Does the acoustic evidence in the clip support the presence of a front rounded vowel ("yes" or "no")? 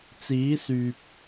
yes